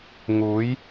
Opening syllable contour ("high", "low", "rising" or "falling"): rising